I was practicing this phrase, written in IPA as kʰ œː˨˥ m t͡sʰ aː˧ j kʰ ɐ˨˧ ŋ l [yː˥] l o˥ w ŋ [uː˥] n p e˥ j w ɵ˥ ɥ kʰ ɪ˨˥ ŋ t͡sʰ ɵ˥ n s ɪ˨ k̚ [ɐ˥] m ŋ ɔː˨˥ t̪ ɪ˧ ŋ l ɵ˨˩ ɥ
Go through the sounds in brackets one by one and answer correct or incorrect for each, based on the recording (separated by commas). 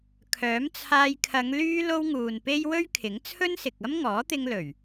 correct, incorrect, correct